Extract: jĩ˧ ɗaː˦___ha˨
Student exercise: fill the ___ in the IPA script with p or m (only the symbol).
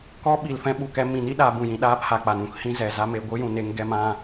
p